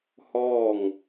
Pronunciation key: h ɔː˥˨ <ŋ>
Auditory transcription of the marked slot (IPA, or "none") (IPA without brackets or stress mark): ŋ